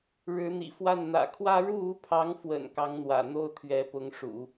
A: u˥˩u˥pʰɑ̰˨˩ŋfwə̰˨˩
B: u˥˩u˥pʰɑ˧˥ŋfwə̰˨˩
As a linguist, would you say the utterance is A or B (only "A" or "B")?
B